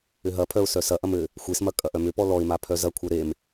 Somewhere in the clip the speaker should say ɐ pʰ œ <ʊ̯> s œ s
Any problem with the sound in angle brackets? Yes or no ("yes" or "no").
no